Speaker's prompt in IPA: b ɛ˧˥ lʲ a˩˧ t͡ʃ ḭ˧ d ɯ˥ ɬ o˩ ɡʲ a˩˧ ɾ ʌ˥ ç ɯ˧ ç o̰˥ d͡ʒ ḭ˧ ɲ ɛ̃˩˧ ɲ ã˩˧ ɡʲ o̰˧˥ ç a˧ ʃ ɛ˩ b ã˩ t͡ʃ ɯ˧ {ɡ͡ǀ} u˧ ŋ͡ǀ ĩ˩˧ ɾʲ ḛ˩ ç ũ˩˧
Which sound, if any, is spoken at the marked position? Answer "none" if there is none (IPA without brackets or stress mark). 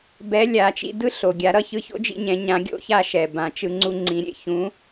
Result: ŋ͡ǀ